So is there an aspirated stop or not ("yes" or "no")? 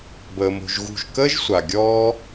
no